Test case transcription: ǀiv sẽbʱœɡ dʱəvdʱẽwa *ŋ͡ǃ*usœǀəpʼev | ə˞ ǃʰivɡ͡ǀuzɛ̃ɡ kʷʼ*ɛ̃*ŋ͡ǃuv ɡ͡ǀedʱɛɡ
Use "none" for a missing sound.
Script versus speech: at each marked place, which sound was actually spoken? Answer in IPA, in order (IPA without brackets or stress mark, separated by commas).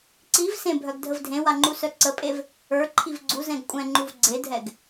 ŋ͡ǃ, ɛ̃